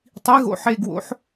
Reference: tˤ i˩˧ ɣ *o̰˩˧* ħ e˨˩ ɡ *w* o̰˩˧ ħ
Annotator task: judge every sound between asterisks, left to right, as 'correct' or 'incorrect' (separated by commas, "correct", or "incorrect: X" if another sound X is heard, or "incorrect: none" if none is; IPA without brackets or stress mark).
incorrect: o̰˨˩, correct